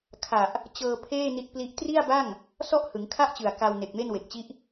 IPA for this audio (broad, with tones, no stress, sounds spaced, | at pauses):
kʰ a˨˩ ʔ | t͡ɕ ɤː˧ pʰ eː˥˩ n i˦˥ t̚ p l i˦˥ ʔ t r i˥˩ a̯ b a˥˩ ŋ | s ɔ˥˩ ʔ h ɯ˩˦ ŋ kʰ a˥˩ ʔ t͡ɕ ɯ˨˩ a̯ k a˧ w n e˨˩ k̚ m e˥˩ n w e˨˩ k̚ t͡ɕ i˦˥ ʔ